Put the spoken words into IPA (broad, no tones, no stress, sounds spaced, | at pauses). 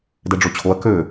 d ɛ ɖ͡ʐ o t͡ɕʰ o ɐ̯ k ø